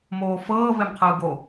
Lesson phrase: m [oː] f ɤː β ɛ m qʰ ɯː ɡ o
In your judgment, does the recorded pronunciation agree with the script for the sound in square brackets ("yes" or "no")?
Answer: yes